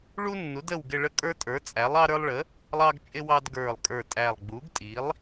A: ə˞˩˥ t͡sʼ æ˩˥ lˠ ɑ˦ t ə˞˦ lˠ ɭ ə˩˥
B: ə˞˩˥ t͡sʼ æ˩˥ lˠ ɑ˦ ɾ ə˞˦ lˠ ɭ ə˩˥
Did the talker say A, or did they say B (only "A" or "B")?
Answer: B